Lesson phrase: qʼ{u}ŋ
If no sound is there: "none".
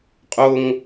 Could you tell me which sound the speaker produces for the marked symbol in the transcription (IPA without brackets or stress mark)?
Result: ʊ